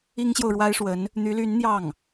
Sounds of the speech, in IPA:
i˥ ŋ ɕ j o˨ ʊ̯ ɻ w a˥ ɪ̯ ʂ w ə˧˥ n | n̪ y˧˥ l y˧˥ n n̪ j ɑ˥˩ ŋ

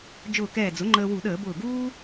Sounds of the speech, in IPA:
d͡ʒ ʊː˧˩ k ɛː˧˩ d͡z ʊ˩˥ ŋ͡ǃ əː˧ w u˧˩˧ ɗ əː˧˩˧ b ʊː˧˩ ɡ uː˥

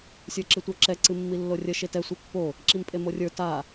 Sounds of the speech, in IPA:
sʲ ə˞ ǁ ɨ tʷ ə˞ ǁ ɛ ǀ ɨ mː i lː o rʲ ə ʃ e t ɛ sʷ e pː o | ǁ i m pʼ e m o rʲ ə˞ t a

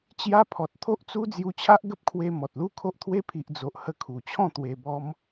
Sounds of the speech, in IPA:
t͡ɕ j a˧ pʰ ɔ˨ t̚ t̪ʰ o˦ ʔ t͡s u˦ d͡z j u˧ t͡ɕʰ a˦ ʔ ɡ ə˦ p̚ kʰ w e˧ m ɔ˨ t̚ l u˦ kʰ o˦ ʔ t̪ʰ w e˦ pʰ i˨ ʔ d͡z o˨ ʔ h ə˧ kʰ u˨˩ t͡ɕʰ ɔ̃˥˧ t̪ w e˧ b ɔ˦ m

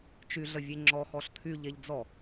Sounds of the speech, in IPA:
t͡ʃ y ɮ ə vʲ e ŋ͡ǁ ɔ x ɔ ɬ t̪ʰ y ʎ e ʎ d͡z ɔ

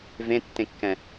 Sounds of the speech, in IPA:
v ẽ tː ẽ kː ɛ̃

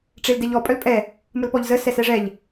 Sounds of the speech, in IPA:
ʈ͡ʂ e l d ɛ ʎ ɔ pʼ œ l pʼ ɛ | m ə l p ɔ ʎ z ə s ɛ s ɛ ʐ ɛ ʎ

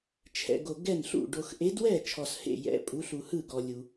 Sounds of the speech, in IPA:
t͡ʃʰ ɛ̰˨ ɡ o˨ ɡ ɛ˥˩ n ɬ ṵ˥˩ ɖ o˨ x ʔ e˨˥ d w ɛ˥˩ t͡ʃʰ ɔ˨ s h ḛ˥˩ j ɛ̰˨˥ pʼ u˨˥ ɬ u˨ h ɯ˥˩ ɡ ɔ˨ lʲ u˨

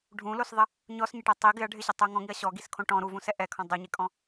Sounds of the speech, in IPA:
ɖʱ ũ l o s ðˤ ɪ | ɲ ɔ s ɲ ɪ ʈ ɛ tˤ i ɡ ɪ ɐ̯ ɖʱ ɪ ɕ ɪ tˤ o ŋ ɔ̃ ŋ i ɐ̯ ɕ ɔ ɡ i s kʰ õ ʈ ɔ̃ ɾ u v ũ s ɛ ʔ ɛ kʰ ɔ̃ dˤ o ɲ e kʼ ɔ̃

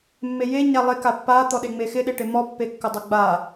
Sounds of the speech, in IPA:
mː e j e ɲ a lˠ e k a pː a t̪ ɔ ɗ e ŋ͡m e x ɪ ɗ e ʈ e m ɔ pː e kː ʊ dˤ ʊ ɡ͡b a

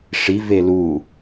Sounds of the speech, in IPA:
ʂ i v e l u

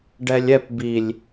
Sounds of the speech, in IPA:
ɖ ɛ lʲ ɛ p b i lʲ

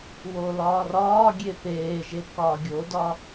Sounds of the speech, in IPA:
w o l ɒː r ɒː ɡʲ e p eː ʒ e k ɒː ɡʲ o d ɒ

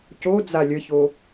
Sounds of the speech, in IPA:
c o d͡z a lʲ ə ç o

